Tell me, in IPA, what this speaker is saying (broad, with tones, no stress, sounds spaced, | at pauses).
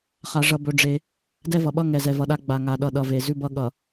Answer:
χ a˦ ʐ ʌ˦ b ɵ˦ ɖ͡ʐ e˦ | d ɛ˦ v ʌ˨ ɓ ʌ˦ ŋ ɛ˨ z ɛ˨ v ʌ˨ ɗ a˦ ɡ͡b a˨ ŋ a˨ ɗ ʌ˨ ɗ ʌ˨ v e˨ z ʉ˦ b ʌ˦ ɠ ʌ˨